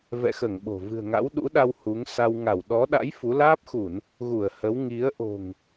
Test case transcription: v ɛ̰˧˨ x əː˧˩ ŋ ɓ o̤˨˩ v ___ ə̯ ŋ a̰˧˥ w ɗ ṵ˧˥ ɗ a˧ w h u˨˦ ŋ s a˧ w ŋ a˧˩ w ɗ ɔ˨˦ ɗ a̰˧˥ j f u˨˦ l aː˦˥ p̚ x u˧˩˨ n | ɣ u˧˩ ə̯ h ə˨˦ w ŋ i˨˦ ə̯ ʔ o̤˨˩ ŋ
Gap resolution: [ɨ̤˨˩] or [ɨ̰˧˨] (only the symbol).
ɨ̤˨˩